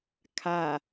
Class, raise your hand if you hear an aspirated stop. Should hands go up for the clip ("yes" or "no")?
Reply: yes